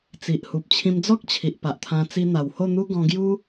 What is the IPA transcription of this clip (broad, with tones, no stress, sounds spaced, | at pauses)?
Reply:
t͡s i˨ ʔ h u˨ p̚ t͡ɕʰ ĩ˧ m d͡z ɔ˦ k̚ t͡ɕʰ i˨ ʔ p a˨ ʔ t̪ʰ ã˧ t͡s i˧ n̪ a˨˩ w h o˥˧ n̪ u˦ ɡ ɔ̃˧ ɡ j u˦